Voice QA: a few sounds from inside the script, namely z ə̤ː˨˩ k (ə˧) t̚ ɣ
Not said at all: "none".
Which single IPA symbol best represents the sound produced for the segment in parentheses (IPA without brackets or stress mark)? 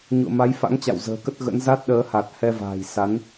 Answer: ə˦˥